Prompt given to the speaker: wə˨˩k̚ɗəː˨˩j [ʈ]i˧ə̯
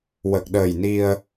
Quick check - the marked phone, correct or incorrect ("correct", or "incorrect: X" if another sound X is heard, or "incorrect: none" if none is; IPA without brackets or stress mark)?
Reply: incorrect: n